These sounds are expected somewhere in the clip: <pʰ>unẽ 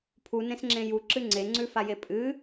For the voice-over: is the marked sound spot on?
yes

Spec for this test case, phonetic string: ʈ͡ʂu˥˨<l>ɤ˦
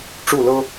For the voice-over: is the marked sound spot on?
yes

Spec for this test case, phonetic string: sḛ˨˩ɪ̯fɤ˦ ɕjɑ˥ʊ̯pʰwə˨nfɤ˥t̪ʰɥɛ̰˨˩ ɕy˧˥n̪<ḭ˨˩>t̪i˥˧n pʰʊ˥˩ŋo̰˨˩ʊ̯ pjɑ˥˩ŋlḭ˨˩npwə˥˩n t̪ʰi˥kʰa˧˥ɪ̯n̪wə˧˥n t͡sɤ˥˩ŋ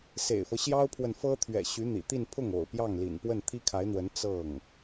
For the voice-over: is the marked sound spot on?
yes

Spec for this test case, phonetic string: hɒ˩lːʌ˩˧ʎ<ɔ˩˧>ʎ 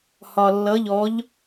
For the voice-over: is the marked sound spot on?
yes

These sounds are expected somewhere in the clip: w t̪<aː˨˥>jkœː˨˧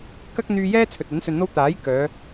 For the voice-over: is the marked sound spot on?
yes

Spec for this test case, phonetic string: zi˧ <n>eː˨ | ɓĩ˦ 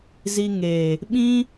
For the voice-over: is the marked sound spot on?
no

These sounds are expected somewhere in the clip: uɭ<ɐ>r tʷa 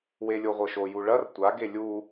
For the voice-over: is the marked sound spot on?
yes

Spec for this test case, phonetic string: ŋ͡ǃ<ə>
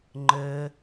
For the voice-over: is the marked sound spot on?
yes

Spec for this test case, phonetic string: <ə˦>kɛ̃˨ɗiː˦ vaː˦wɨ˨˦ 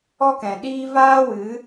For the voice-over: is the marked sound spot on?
no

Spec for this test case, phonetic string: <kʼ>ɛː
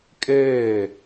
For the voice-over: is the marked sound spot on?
yes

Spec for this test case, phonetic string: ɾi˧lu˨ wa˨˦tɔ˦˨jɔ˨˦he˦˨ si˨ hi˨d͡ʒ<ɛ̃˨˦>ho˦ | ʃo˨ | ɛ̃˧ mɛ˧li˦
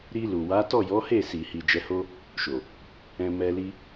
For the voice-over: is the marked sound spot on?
no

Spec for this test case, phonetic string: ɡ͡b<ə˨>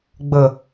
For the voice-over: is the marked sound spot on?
yes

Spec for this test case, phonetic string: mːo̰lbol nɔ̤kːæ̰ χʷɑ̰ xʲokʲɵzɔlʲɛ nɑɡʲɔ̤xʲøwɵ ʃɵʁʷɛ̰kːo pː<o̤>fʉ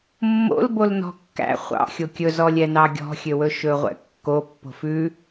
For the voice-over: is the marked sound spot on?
yes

